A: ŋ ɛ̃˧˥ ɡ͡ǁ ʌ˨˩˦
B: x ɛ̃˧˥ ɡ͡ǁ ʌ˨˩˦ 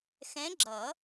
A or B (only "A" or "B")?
B